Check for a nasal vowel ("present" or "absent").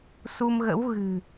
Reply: absent